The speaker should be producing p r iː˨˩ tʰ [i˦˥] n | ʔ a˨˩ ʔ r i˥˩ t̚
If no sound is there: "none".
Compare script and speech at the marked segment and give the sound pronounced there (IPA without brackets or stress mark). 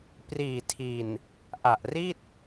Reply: i˨˩